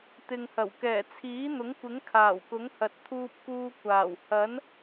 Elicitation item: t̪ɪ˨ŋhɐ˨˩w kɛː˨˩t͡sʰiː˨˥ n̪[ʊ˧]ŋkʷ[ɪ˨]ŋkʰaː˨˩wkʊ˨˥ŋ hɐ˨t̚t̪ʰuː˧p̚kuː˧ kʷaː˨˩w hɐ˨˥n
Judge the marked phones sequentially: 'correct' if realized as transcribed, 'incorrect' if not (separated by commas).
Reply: incorrect, incorrect